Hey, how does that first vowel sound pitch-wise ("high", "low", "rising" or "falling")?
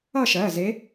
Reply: falling